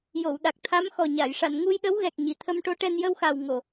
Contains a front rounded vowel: no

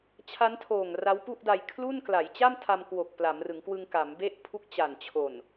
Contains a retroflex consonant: no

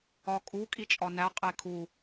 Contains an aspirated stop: yes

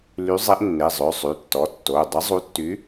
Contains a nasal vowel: no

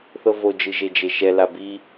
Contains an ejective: no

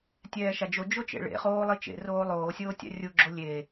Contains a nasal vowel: no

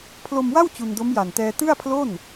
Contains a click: no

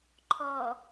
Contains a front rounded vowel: no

